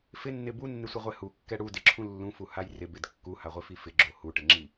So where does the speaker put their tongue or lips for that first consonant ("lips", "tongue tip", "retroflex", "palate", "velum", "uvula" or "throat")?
lips